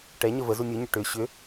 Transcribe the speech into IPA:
ʈ ɛ ɲ ə v ə z u nʲ u ɲ ʏ ʈ ʏ ɕ ʏ

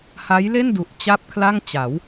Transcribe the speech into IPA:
h a˦˥ j l e˥˩ n d u˨˩ ʔ t͡ɕ a˥˩ p̚ kʰ l a˥˩ ŋ t͡ɕ a˩˦ w

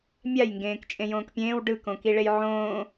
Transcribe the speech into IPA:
mʲ a j ŋ ɡ ẽː k t͡ʃʼ ẽ j õː k pʲ ẽː w ɖ ɯ k õ k i ɭ e j ʕ õː

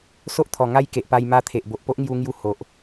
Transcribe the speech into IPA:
s o˦ ʔ t̪ʰ ɔ˨˩ ŋ a˦ j k e˨ ʔ p a˧ j m a˧ t̪ʰ e˨ ʔ b o˨ ʔ p o˦ ʔ ŋ j u˧ ŋ j u˧ h o˨ ʔ

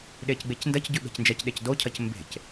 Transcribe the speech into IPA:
ɗ e c ɡ͡b e c n d ɐ c ɟ ʉ ɓ e̤ c n d͡ʒ ɐ c ɗ e c d o cʰ ɐ c m b e̤ c

